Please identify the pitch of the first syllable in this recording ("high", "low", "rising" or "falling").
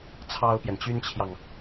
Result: high